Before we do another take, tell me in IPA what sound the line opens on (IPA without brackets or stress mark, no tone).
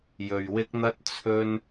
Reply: j